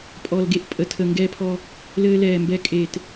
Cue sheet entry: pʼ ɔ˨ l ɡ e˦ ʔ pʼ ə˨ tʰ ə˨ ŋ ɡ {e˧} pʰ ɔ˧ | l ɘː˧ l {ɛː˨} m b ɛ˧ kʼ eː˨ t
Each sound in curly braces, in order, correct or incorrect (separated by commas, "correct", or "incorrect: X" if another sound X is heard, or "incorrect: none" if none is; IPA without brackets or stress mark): incorrect: ɛ˧, correct